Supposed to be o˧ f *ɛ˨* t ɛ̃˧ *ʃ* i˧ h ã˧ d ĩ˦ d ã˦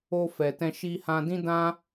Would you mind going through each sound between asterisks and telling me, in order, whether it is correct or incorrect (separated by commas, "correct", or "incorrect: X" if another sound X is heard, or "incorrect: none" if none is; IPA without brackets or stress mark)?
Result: correct, correct